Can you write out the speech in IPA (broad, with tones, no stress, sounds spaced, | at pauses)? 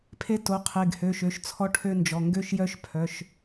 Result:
pʰ e˦ t o˩˧˩ qʰ e˩˧˩ ɡ h ø˩˧˩ ʃ ø˩˧˩ ʃ t͡sʰ ɔ˦ ʈʰ ø˦ n d͡ʒ ɔ˩˧˩ ŋ ɡ ø˦ ʃ j œ˦ ʃ pʰ œ˩˧˩ ʃ